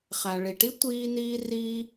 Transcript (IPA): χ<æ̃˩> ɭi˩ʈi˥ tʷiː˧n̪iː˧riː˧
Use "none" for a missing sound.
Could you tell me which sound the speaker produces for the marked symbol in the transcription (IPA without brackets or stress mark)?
æ˩